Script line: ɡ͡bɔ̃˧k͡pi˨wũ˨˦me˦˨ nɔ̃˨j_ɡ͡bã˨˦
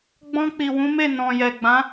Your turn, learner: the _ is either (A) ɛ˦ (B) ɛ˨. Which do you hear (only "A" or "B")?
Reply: B